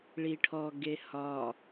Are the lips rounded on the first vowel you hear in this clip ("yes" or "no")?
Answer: no